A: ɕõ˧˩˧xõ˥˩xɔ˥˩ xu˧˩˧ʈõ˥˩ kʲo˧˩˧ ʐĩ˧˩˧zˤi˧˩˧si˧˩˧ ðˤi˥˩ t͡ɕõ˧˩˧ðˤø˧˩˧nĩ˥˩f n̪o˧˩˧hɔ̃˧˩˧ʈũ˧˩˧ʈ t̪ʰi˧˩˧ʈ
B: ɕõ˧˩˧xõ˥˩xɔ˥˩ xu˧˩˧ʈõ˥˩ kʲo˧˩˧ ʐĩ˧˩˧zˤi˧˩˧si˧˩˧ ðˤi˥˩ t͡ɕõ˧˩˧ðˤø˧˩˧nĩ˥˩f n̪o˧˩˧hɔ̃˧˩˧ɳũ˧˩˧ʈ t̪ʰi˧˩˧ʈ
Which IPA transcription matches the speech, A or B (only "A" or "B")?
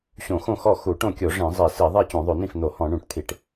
B